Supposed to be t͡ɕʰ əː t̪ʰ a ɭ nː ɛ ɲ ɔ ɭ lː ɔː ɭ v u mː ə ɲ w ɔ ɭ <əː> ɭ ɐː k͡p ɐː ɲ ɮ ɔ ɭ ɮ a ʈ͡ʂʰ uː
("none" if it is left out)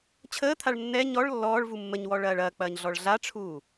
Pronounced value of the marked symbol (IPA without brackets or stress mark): ɐː